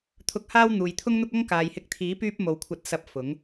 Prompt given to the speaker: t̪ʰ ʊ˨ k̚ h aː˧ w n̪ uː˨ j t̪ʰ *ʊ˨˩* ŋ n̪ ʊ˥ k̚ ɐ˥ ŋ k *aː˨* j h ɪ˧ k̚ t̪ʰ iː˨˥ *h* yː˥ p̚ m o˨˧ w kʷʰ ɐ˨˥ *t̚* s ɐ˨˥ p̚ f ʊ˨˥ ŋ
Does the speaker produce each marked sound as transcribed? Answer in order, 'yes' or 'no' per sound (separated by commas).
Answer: no, yes, no, yes